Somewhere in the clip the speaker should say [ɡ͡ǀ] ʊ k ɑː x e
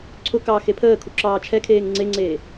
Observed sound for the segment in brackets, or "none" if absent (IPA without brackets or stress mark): ǀʰ